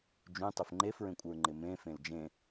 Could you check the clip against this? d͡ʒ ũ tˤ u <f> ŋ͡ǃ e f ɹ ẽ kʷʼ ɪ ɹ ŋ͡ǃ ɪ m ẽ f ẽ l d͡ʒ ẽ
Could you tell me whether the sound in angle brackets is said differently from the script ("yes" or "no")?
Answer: no